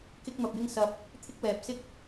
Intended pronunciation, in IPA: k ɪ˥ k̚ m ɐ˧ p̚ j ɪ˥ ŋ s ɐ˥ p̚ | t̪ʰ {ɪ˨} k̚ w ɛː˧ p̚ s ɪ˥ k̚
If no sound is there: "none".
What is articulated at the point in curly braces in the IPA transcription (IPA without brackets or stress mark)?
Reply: ɪ˥